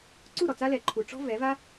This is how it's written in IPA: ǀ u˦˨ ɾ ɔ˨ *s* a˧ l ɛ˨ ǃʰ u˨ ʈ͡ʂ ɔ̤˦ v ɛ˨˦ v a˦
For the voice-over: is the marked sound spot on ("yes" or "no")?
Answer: no